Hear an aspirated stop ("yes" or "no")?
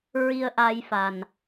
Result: no